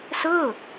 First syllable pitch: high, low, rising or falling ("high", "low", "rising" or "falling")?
falling